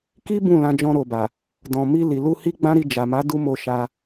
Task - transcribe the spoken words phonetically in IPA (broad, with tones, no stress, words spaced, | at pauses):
ki˦ bũ˦˨lã˧ d͡ʒɔ̃˧ɾo˨ba˨ | dɔ̃˨mi˧ li˨lu˧hi˦ ɡ͡bã˦ɾi˧d͡ʒa˨ ma˨˦ du˦mo˧ ʃa˧